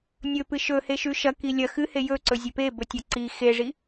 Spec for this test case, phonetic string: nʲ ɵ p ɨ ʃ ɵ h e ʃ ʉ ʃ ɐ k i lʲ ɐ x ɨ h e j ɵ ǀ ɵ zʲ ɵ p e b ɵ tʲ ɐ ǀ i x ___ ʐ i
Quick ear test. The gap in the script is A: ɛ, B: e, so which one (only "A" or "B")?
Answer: B